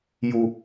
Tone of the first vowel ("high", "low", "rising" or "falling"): high